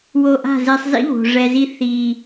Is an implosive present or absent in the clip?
absent